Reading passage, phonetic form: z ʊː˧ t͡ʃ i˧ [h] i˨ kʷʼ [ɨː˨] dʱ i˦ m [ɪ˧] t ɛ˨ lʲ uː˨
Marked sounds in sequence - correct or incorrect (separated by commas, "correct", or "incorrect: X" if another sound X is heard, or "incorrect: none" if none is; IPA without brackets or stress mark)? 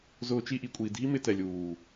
incorrect: ʔ, incorrect: iː˨, correct